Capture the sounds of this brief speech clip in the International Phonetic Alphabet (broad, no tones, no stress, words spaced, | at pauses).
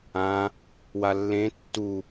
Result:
ã | walːẽ tːu